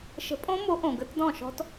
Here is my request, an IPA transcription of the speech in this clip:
ʃ ə̤˨˥ pʼ õ˦˥ m o˨˥ ʔ õ˩ ɡ ə˨˥ t d ɔ̃˥˩ ʃ ɔ̤˦˥ t

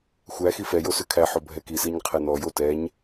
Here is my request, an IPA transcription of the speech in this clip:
xʷ æ x i f ɛ j o s ʉ kʰ æ ħ o bʱ ɛ k i s i ɲ qʰ ɛ n ɔ j o t ɛ ɲ

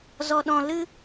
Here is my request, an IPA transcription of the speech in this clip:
z ɔ˧ ɗ ɔ̃˧ l ɨ˦

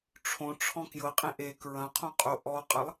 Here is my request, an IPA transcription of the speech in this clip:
ʈ͡ʂʰ õ ʈ͡ʂʰ ɔ̃ k j ɤ qʼ ẽ ʔ e k ɹ ɐ̃ qʰ õ qʼ o ʔ ɔ qʼ ɐ lˠ

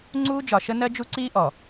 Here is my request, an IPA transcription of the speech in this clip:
ŋ͡ǀ uː˦ d͡ʒ ɒ˨ ʃ ə˦ n ɜ˦ d͡ʒ u˦ ǀ iː˦ ʔ ɔ˨

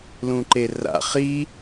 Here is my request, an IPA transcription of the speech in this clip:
l ũ ǃ e r a̰ χ i

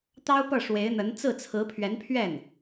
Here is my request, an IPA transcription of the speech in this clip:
t̪ ɑ˥ ʊ̯ p ɤ˥˩ ʂ w e˧˥ ɪ̯ n̪ ə˧˥ n t͡s ɹ̩˥˩ t͡sʰ ɹ̩˧˥ pʰ ɥ ɛ˧˥ n pʰ ɥ ɛ˥˩ n

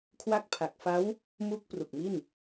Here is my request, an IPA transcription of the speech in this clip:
kʰ w a˦˥ k̚ pʰ a˨˩ k̚ f a˦˥ w | m u˦˥ k̚ p r u˨˩ k̚ m i˥˩ n

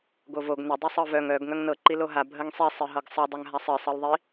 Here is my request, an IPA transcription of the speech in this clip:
ɡ o v o ɡ n ə dˤ ɨ sˤ ɤ v œ ŋ œ ɡ ŋ œ ŋ n ɤ ǃ i l o ɦ a bʱ ə ŋ sˤ i sˤ ɨ ɦ ɤ ɡ sˤ ɨ dˤ œ ŋ ɦ a sˤ ɨ sˤ ɤ l ðˤ i

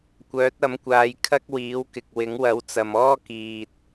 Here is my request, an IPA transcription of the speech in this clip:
kʷ œː˨˥ t̚ ɐ˨˥ m kʷ aː˨˧ j kʰ ɐ˥ k̚ w iː˨˥ w k ɪ˨ k̚ w ɪ˨˥ ŋ w ɐ˨˥ w t͡s ɐ˨ m ɔː˥ k iː˨ t̚

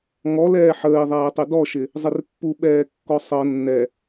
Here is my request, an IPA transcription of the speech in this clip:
ŋ ɔ l ɛː ħ əː i̯ ðˤ ɛː tˤ e d ɔ ʃ ɪ | zˤ ɪ r pː u ɓ ɛː kː ɔ sˤ ɤ nː ɛ

